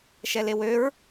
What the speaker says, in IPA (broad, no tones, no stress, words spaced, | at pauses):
ʃɛlewøɹ